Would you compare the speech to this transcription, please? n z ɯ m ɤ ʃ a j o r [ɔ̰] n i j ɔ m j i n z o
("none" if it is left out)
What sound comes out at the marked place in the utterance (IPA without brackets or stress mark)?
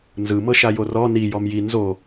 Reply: ɔ